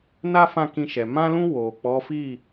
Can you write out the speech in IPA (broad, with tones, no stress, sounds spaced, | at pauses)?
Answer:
n a˦ f ã˦˨ k ĩ˧ ʃ ɛ˨ m ã˧ l ũ˧ w o˨ k͡p ɔ˨˦ f i˦˨